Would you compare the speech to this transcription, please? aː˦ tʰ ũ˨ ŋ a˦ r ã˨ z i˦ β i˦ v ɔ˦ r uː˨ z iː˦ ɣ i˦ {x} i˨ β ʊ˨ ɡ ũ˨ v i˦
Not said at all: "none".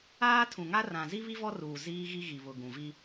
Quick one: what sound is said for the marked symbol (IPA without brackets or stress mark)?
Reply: ɣ